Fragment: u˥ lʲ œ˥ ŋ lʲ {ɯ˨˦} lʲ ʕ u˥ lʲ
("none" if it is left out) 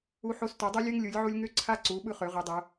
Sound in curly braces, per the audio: ɯ˨˦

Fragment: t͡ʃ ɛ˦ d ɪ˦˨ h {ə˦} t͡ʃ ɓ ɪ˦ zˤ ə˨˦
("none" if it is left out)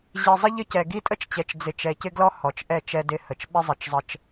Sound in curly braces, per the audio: ə˨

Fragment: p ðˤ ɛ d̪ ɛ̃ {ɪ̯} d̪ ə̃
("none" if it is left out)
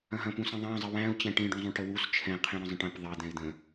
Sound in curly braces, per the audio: ɪ̯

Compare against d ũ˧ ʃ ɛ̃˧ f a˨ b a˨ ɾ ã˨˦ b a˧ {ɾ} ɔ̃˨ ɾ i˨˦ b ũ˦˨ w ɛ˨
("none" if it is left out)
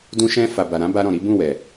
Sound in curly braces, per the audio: ɾ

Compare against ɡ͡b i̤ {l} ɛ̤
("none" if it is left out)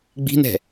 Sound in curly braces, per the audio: n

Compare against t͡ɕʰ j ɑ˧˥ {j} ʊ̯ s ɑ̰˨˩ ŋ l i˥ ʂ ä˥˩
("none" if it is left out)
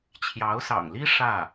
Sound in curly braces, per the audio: none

